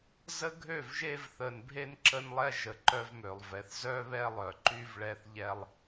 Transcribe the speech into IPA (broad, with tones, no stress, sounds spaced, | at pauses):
z ə˦ ɡʱ ø˦˨ v ʒ e˦ v θ ə˨ n bʱ e˦ n ǁ ə˦ n lˠ ɛ˦ ʒ ə˨ ǃ œ˦ v m ø˨ lˠ v ɛ˨ θ z œ˦ β ɛ˦ lˠ œ˨ ǃ y˦ v ɭ ɛ˦ θ ʎ ɛ˦ lˠ